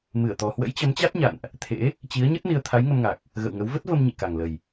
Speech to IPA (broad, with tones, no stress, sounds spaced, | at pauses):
m ɨ˧˩ ə̯ t̪ ɔ˨˩ h w ə̰˧˥ j t͡ɕ ə˨˦ m t͡ɕ a˦˥ t̚ ɲ a̰˧˨ n ʔ | t̪ʰ ḛ˧˥ | t͡ɕ i˨˦ ə̯ ɲ ə˦˥ t̚ n i˧ ə̯ t̪ʰ a˨˦ j ŋ ə˧ m ŋ a˨˩ k̚ | ɣ ə̰˧˨ w ŋ ə˨˦ w v ə˦˥ t̚ v ə˧ m ɲ ḭ˧˨ k a˨˩ ŋ l ə˨˩ j